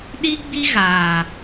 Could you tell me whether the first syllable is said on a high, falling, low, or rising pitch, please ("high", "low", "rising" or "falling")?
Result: high